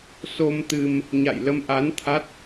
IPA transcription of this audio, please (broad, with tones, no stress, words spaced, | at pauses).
so˧m t̪ɨ˧m | ɲa̰˧˨jlə˧mʔa˨˦n t̪ʰa˦˥t̚